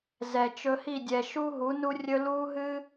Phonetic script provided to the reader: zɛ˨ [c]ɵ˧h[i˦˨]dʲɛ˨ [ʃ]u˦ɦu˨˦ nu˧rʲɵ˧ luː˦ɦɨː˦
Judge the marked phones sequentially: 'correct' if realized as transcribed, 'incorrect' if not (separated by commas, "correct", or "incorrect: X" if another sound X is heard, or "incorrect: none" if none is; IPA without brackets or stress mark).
incorrect: t͡ʃ, correct, correct